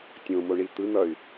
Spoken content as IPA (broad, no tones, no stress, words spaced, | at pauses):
tʲõ moɳit̪ɯn̪ʌy̯